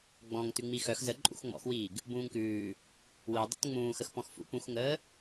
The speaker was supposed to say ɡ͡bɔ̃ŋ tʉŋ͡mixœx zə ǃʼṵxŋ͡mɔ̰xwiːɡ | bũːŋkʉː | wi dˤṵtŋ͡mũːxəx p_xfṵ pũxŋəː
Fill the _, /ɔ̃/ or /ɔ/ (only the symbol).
ɔ̃